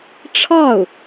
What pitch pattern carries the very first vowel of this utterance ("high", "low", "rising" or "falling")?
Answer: falling